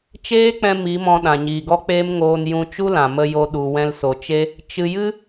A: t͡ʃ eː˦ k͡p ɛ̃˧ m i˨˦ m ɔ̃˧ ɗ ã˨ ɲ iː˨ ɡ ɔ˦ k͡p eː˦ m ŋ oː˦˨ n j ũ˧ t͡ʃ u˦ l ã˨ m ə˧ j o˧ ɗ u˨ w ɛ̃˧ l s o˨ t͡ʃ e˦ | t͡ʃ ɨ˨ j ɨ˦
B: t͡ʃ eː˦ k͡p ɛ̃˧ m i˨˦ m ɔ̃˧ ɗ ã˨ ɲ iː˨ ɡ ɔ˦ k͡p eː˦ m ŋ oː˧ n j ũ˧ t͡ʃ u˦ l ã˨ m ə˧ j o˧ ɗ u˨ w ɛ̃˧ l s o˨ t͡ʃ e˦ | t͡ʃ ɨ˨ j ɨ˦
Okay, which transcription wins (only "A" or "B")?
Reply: B